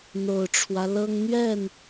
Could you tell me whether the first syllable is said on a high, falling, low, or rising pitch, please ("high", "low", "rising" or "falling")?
low